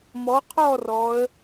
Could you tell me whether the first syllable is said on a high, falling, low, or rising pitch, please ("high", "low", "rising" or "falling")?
rising